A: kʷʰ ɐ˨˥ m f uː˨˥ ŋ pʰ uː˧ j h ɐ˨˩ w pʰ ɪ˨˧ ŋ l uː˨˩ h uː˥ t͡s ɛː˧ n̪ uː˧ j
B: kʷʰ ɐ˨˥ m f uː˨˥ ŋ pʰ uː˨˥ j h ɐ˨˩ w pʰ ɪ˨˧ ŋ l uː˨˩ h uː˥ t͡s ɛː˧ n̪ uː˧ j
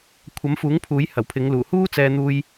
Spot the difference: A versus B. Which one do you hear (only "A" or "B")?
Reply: B